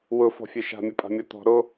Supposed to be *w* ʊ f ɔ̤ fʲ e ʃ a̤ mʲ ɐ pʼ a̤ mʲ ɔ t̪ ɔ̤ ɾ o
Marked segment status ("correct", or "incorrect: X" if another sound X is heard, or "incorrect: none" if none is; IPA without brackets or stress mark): correct